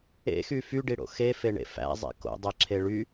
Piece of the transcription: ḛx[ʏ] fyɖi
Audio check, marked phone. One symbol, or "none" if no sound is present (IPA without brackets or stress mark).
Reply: y